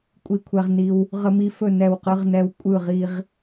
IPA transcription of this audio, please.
kʷʼ i˥˨ kʷʰ ɛ˦ ʁ n i˦ w | ʁ ə˦ m i˦ f ɵ˥˨ n ɛ˥˨ w q ɯ˦ ʁ n ɛ˦ w kʷʼ ɯ˥˨ ʁ i˦ ʁ

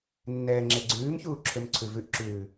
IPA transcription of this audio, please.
nː ɛː ŋ͡ǁ e ɡ͡ǀ ʉː m ç uː ǁʰ ø m ǀʰ ʉ v ʉ ʔ ǁ ʉː

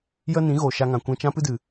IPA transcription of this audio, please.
j ə˦ n ĩ˨˦ ɣ oː˨ ʃ a˧ ŋ ã˨ kʷ ɛ̃˧ t͡ʃ ã˦ p ɨ˦ d ɨ˨

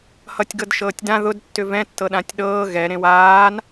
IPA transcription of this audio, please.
h ʌ tʲ ɡ ɤ d ʃ ɤː tʲ d ã ð ʊ d tː ʏ v ɛ̃ tː ɤ ɗ ã tʲ ɗ ɤː ɣ ɛ ɾ ẽ w aː n

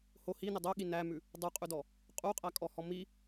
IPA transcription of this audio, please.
h o h i n ɪ dˤ o ɠ i n æ m ʉ | dˤ u qʼ ʉ d ɔ | qʼ u qʼ æ kʼ ɔ h ɔ m i

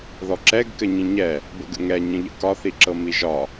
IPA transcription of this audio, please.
ð ɔ ǁ ɛ ɡ k ɘ ɲ ĩ ɲ ɛ | b ə̰ ɡ ə̰ ŋ ɛ ɲ ə̃ ʎ ə̰ k ɒ θ i ǁ ɤ m i ʒ ɒ

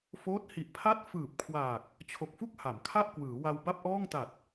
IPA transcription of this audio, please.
f oː˦˥ t̚ h i˨˩ ʔ pʰ a˥˩ t̚ f ɯː˨˩ p̚ kʰ w aː˨˩ k̚ | t͡ɕʰ o˨˩ k̚ f u˥˩ k̚ h a˩˦ m kʰ a˥˩ ʔ k w ɯː˩˦ w a˧ w b a˥˩ p̚ ʔ ɔː˥˩ ŋ t a˨˩ t̚

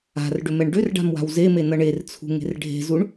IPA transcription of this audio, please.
a̤ r ɖ ʏ m ɛ ɳ ɖ ʏ r ɖ a̤ m w a̤ w z e m e n ʌ ɳ e r t͡sʰ ṳ ŋ e̤ r ɖʱ e̤ z u ɳ

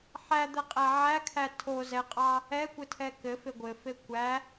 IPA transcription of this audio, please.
ħ æ d̪ ɛ qʼ æ ʕ æ kʰ æ tʰ o z ɛ qʼ ɑ | ɛ kʷ ɘ tʰ ɛ k ɘ f e ɡʷ ɘ f e kʷ æ

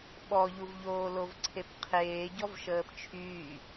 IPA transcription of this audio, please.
ɓ ɔ ʎ u v ʎ oː l o v ǀʰ e p qʰ eː ɟ ɔ v ʃ əː p t͡ʃʰ yː

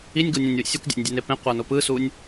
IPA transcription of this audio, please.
i nʲ ɡ o nʲ ɛ̃ nʲ w ḭ sʲ u kʷ dʲ a̰ nʲ dʲ ɛ n e p ẽ qʷ a n o p ɯ s u nʲ

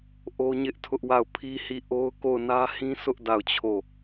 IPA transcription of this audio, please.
ʔ o˦ ɲ ɪ˦ ʔ tʰ ʊ˦ ʔ w a˦˨ ʊ̯ pʰ i˦ h i˦˨ ʔ o˦ ʊ̯ k o˦˨ ʊ̯ n ä˦ h ĩ˦ sʰ ʊ˦ ʔ d a˦˨ ʊ̯ t͡ɕʰ o˦˨

